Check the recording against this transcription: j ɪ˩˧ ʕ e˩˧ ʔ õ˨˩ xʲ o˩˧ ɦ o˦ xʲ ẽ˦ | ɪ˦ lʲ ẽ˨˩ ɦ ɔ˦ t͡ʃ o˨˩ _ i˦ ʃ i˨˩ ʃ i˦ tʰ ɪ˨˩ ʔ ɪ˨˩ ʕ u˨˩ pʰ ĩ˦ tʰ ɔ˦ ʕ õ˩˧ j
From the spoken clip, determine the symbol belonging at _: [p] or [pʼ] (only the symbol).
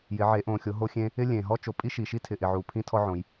pʼ